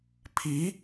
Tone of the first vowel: rising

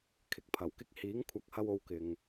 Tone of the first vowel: rising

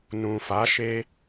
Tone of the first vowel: low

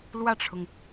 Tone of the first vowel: falling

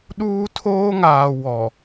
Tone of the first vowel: high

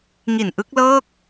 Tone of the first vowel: low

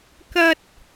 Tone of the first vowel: high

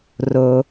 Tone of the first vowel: low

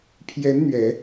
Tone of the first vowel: rising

